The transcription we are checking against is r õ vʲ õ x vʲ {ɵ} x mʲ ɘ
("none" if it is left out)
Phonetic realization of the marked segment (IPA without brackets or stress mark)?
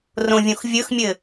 ɵ